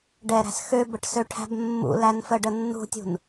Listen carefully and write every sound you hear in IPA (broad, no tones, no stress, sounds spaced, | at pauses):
ɖ ɛ ɾ æ̤ s x ø b ə ʈ s ø ʈʰ æ̤ b mː ṵ l æ n f ə ɖ ə nː ṳ tʲ ṳ n